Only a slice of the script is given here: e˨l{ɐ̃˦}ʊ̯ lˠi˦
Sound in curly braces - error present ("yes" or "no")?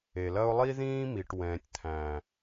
yes